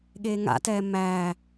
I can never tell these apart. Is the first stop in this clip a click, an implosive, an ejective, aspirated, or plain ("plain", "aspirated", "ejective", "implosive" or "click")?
implosive